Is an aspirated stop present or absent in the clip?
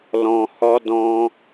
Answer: absent